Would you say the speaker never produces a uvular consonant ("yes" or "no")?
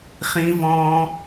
no